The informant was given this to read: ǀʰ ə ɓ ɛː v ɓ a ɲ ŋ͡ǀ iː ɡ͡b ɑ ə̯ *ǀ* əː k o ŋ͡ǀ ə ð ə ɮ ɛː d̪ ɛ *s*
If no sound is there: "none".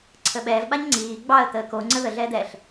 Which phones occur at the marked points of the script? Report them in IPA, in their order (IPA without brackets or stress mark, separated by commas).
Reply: t̪, ɬ